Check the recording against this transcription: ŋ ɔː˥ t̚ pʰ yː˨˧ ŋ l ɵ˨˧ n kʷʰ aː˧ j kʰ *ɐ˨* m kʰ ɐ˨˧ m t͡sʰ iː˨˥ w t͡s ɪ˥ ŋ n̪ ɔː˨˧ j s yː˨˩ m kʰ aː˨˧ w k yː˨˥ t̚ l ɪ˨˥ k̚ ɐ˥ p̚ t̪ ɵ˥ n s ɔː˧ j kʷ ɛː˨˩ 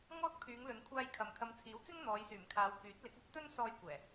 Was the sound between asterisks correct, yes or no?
yes